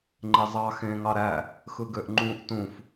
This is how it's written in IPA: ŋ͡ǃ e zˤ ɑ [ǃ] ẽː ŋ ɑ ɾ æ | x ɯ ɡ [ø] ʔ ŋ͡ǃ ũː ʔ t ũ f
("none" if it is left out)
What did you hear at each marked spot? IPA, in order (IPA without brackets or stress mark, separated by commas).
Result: x, ø